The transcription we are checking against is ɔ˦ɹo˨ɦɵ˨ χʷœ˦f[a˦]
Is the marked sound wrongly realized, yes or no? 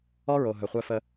yes